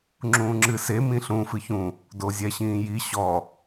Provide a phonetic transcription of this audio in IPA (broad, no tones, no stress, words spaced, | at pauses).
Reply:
ŋ͡ǁũːŋ͡ǁɨse mĩɬũ fɨçũ | dozʲɛɕĩːji ɕɔ